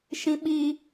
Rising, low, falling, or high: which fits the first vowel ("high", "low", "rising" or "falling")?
high